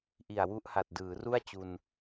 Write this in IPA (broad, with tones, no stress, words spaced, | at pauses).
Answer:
ʔi˨˩a̯wu˦˥ʔha˨˩t̚ dɯː˩˦ru˥˩a̯ t͡ɕu˧n